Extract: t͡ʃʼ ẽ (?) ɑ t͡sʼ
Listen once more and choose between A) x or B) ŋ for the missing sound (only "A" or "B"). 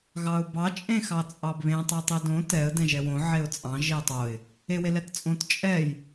A